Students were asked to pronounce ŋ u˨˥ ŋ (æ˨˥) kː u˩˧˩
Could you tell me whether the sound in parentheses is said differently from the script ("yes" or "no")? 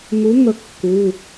yes